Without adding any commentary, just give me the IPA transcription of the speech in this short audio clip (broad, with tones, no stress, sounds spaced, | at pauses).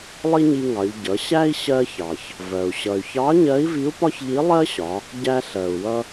lˠ i˥ ɲ i˧ ŋ ɑ˩˧ ʎ ɟ ʌ˩˧ ɕ æ˥ i̯ ɕ ɜ˧ ç ɑ˩ ç | v ɜ˩ u̯ ɕ ʌ˩ y̯ ç ɑ˧˥ ɲ ɜ˧˥ i̯ v i˧˥ u̯ p ɒ˥ ç ʎ i˧˥ lˠ ɜ˥ ɕ ɒ˩˧ | ɟ æ˧ ɬ ɜ˩ u̯ w ʌ˧